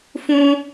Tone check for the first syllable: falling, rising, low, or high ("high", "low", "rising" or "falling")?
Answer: high